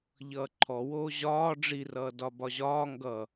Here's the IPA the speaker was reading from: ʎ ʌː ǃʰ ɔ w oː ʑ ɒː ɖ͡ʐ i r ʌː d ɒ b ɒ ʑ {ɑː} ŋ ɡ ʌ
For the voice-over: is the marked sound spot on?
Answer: no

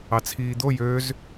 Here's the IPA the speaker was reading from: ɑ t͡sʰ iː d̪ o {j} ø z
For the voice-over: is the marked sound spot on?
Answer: yes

